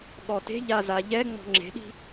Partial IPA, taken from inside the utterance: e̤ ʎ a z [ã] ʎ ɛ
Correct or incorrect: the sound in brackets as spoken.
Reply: incorrect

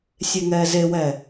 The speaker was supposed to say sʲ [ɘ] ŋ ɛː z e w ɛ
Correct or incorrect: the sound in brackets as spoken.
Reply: incorrect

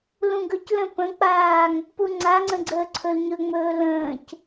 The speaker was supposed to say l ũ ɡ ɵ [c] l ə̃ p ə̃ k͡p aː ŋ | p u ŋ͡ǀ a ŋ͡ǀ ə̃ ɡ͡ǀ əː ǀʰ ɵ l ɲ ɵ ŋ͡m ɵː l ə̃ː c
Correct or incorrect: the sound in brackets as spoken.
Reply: correct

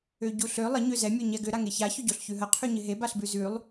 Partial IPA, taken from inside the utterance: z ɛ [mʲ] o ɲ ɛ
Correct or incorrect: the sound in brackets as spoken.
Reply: correct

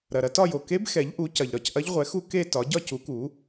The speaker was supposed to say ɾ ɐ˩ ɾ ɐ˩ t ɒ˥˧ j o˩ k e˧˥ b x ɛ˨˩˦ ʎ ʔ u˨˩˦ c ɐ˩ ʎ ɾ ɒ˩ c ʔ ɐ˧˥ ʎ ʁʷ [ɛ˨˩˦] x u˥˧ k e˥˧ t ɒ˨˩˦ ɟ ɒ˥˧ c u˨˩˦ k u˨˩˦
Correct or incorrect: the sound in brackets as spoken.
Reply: correct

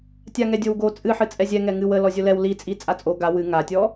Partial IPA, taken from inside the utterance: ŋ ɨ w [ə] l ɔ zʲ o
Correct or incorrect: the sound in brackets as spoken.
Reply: correct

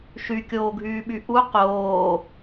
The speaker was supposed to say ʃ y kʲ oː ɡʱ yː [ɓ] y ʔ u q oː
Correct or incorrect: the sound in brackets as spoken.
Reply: correct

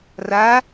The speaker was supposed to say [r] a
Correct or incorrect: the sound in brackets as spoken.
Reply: correct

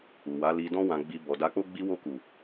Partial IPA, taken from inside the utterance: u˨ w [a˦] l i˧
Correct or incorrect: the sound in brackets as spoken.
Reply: incorrect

